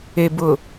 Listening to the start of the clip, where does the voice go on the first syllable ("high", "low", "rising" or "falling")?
low